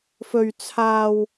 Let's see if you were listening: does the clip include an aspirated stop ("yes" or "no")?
yes